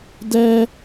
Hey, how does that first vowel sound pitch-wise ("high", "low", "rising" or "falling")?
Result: high